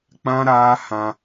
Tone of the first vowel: high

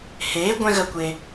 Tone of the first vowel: rising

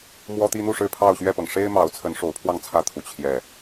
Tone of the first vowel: high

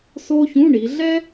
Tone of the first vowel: high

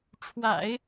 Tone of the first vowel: low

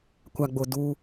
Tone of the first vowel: low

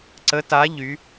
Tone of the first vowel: rising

